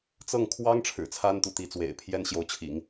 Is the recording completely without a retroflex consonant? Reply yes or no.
no